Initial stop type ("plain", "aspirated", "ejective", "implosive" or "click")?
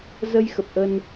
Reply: plain